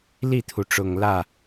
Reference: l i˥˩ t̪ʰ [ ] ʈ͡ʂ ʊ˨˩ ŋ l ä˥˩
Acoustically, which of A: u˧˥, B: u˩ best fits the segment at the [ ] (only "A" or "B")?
B